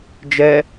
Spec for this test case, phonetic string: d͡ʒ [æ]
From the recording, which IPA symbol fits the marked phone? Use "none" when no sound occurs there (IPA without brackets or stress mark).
ɛ